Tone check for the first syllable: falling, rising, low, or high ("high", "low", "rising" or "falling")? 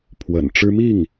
low